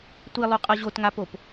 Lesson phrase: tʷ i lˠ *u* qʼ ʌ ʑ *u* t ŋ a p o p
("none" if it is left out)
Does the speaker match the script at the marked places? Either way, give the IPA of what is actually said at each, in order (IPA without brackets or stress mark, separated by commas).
u, o